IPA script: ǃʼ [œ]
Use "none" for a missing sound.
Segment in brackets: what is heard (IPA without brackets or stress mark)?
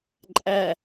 æ